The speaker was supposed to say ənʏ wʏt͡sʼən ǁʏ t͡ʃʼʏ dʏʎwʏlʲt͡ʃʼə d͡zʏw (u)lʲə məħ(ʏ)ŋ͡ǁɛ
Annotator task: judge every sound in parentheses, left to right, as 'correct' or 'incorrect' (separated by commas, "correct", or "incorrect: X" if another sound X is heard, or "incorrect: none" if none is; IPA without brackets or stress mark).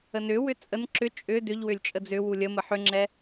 correct, correct